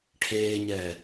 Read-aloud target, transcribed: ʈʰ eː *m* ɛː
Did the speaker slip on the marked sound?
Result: yes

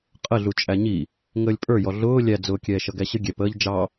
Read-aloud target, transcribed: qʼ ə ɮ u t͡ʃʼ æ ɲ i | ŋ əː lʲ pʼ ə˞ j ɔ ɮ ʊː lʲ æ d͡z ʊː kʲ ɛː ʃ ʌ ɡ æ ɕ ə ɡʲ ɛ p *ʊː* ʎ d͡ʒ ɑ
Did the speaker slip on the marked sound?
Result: yes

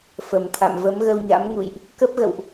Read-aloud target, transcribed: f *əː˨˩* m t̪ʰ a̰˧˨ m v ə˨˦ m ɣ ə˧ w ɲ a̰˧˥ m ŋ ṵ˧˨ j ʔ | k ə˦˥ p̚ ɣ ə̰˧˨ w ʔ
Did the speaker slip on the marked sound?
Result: yes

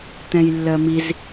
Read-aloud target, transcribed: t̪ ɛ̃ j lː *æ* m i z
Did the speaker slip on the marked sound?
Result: yes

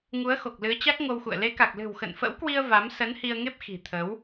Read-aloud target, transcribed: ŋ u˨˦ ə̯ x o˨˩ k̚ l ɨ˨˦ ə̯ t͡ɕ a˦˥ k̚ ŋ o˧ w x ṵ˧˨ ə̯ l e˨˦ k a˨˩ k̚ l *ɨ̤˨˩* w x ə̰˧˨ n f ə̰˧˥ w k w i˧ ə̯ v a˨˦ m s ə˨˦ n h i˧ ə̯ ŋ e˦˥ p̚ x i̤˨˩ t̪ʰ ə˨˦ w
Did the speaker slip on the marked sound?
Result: no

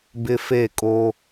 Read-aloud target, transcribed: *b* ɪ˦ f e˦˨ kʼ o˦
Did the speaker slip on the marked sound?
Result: no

